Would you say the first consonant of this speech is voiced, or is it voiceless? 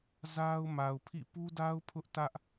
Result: voiced